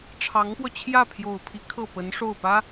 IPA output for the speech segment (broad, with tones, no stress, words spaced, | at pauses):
ʈ͡ʂʰɑ˧˥ŋpwɔ˧ t͡ɕʰjä˥˩pʰjo˨˩ʊ̯pʰi˧˥ kʰɤ˥˩pə˧˥nʂo˥˩ʊ̯pä˥